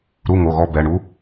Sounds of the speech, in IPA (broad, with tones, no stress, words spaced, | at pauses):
ɾu˧˥˧ŋo˩˧˩ɣɔ˧˥˧ bɛ˩˧˩ ɳu˧˥